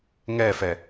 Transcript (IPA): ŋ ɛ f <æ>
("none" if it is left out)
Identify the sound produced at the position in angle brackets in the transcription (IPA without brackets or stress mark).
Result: ɛ